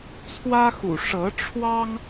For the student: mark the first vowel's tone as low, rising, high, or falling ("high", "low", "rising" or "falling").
high